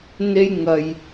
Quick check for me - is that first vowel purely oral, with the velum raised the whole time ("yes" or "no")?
yes